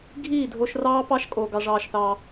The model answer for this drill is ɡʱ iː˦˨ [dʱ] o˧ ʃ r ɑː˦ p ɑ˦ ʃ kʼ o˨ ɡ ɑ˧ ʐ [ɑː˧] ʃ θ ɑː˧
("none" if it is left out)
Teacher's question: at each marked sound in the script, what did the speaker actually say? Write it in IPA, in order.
dʱ, ɑː˧

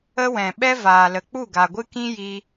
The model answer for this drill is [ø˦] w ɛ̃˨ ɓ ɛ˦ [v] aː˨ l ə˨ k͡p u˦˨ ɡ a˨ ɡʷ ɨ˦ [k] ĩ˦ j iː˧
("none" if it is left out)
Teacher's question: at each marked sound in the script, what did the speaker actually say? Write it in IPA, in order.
ə˦, v, k

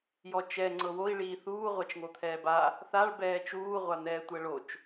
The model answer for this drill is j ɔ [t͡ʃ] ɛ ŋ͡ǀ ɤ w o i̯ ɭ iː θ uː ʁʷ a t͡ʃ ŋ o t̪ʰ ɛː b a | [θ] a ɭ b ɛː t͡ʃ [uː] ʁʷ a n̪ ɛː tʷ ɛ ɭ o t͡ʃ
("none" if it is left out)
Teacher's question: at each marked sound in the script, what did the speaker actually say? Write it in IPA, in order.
t͡ʃ, θ, uː

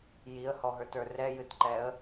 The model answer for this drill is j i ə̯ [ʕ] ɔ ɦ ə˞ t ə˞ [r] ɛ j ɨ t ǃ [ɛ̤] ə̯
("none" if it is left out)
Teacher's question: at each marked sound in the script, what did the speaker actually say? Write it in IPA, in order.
h, r, ɛ

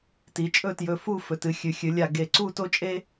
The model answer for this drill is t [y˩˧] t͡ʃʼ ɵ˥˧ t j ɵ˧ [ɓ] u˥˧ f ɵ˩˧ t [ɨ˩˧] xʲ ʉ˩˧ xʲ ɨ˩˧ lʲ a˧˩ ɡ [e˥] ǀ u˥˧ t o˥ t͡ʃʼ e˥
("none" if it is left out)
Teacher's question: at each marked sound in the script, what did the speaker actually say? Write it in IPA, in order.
i˩˧, f, ɨ˩˧, e˧˩

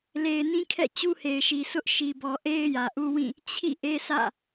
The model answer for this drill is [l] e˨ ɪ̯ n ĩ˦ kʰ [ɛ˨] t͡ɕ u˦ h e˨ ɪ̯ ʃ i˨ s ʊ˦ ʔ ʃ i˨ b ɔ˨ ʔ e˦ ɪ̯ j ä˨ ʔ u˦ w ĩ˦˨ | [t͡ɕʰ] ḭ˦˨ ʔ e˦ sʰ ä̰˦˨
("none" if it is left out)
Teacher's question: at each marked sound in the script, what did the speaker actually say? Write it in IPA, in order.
l, ɛ̰˦˨, t͡ɕʰ

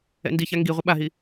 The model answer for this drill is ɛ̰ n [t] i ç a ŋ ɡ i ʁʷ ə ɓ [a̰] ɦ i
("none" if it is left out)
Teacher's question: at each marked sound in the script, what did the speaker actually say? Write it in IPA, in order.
d, a

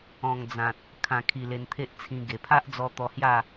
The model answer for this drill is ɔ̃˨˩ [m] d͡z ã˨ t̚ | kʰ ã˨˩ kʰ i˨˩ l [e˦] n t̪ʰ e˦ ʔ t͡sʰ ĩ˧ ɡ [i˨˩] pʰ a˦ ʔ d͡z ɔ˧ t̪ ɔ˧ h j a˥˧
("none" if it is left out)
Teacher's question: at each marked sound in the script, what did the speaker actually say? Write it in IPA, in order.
ŋ, e˧, e˨˩

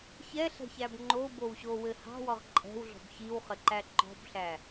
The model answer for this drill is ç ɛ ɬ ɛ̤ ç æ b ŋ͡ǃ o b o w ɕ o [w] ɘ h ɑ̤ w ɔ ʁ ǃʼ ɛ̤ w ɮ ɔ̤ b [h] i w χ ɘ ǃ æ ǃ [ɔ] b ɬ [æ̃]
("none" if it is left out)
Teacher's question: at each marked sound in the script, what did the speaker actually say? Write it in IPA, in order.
w, ç, ɔ̤, æ

